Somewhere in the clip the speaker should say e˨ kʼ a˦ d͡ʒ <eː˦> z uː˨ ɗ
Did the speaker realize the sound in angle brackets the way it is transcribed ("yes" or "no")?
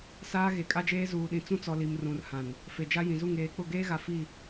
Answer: yes